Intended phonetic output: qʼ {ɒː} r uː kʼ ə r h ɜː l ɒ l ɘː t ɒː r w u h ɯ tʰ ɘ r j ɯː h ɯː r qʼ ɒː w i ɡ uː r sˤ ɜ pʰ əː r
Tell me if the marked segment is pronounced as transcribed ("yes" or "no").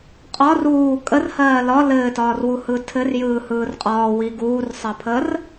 no